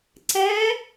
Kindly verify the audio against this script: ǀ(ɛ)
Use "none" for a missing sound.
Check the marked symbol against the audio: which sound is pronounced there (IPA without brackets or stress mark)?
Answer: ɛ